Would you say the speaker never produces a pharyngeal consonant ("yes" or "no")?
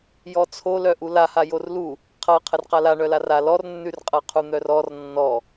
yes